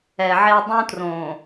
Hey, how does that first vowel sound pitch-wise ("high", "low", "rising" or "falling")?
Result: low